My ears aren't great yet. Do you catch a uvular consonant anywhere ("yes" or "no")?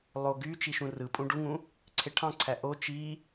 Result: no